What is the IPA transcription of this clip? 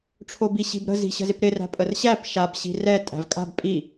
ʈ͡ʂʰ o b i ɕ i̤ b ɾ ə̤ z i̤ ɕ ə̤ z ɪ p ɾ ɪ r æ̤ pʼ ə r ɕ æ p ʃ a b ɕ i̤ r ɛ tʼ æ̤ v kʼ a̤ b pʼ i

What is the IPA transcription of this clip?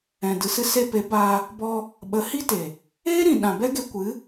ɛ̃˨ d ɨ˨ s ɨ˧ s e˧ p e˨˦ b aː˧ | b ɔ˧ | ɓ ə˨˦ h i˦ t e˨ | eː˦ ɾ ĩ˨ ɗ ã˨ b ɛ˦ ɡ e˧ kʷ ɨ˨˦

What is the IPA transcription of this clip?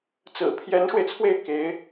t͡s ɹ̩˨˩ pʰ j ɛ˧˥ n ʂ w e˧ ɪ̯ t͡sʰ w e˥˩ ɪ̯ k e˧˥ ɪ̯

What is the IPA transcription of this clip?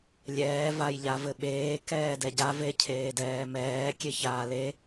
lʲ ɛː v a j ʎ a v ɘ ɓ eː k ɛː d ɛ ɟ a v e cʰ eː d ɛː m ɛː kʲ e ç aː l e

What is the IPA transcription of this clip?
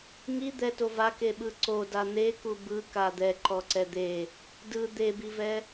ŋ i d̪ ɛ t o v a k e ɓ ɯ ǀ o d a n̪ e k u b ɯ k a d̪ ɛ ǃ ɔ ǀ ɛ d̪ e | d ɯ d̪ e b i v ɛ

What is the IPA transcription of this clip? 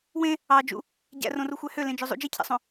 w ẽ | ɑ d͡ʒ ṵ | ɟ æ̰ r õ r u xʷ æ h ø l ẽ d͡ʒ ø zˤ ṵ d͡ʒ i cʰ æ̰ sˤ õ

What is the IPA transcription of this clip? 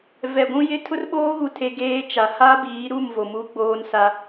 v ɛ˨ ɡʷ ũ˦ j ɪ˦ tʰ ʊ˦ r ɓ oː˦ ɣ u˨ tʰ e˨ ɡ eː˦ t͡ʃ a˨ h a˦ b iː˨˦ ɾ u˦˨ m v o˨ m u˦ ɡ͡b oː˦ n s a˦

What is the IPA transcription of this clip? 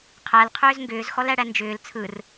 qʰ æ l qʰ ʏː z ŋ ɡ ʏː z x ɔ l æ ɽ æ n d͡ʒ ʏː l t͡sʰ ɯ r

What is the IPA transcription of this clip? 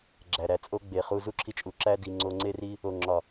ɡ͡ǁ æ˨ ɾ æ˨ t͡sʼ o˦ ɡ͡b e˨ χ u˧ z u˦ ǁʰ i˧ t͡ʃʼ u˨ ǁ æ˦ d i˧ ŋ͡ǀ o˧ ŋ͡ǀ e˦ r i˦ | o˨ ŋ͡ǁ ɒ˨

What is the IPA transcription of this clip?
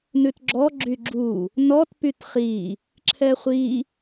n ʉ t ɡ͡ǁ ɔ ɡ͡ǁ y ɡ͡ǁ u | n ɔ t p y t χ i | ǁʰ ɛ χʷ i

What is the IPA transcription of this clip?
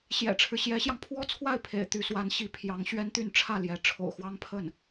ɕ j ɛ̰˨˩ ʈ͡ʂʰ ɻ̩˦ ɕ j ɛ˧˥ ɕ j ɑ˧ ŋ pʰ w ɔ˥ t͡sʰ w a˥˩ ɪ̯ pʰ ḛ˨˩ ɪ̯ t̪ y˧˥ s w a˧˥ n ɕ i˧˥ pʰ j ɑ˧˥ ŋ ɕ ɥ ɛ˥ n t̪ y˥˧ n ʈ͡ʂʰ ä˥˩ l j ɛ˧˥ ʈ͡ʂʰ o̰˨˩ ʊ̯ x w ɑ˥ ŋ pʰ ə˥˩ n

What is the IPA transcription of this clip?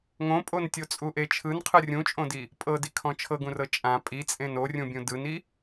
ŋ õ pʼ o n tʲ o t͡sʼ u ʔ e t͡ʃʰ ɯ n qʰ ɯ rʲ ũ t͡ʃʼ õ d i | pʼ ɤ d i kʰ ɔ̃ t͡ʃʰ ɤ ɡ ũ r ɤ t͡ʃʼ ã pʼ i t͡sʼ ẽ n o rʲ ũ bʲ ũ d ɯ n i

